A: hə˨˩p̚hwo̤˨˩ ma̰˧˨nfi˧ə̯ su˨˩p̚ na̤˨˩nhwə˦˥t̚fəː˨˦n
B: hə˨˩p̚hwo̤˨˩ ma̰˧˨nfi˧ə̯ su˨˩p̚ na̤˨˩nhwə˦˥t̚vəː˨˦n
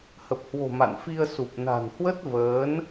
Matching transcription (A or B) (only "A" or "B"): B